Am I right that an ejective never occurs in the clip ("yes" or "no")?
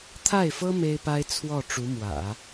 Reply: yes